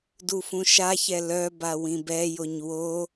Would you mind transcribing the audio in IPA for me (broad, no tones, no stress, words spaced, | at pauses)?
dufũʃaçɛ lœba wĩbɛjoɲ wo